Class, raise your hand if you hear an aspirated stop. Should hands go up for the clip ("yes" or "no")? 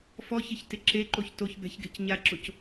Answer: no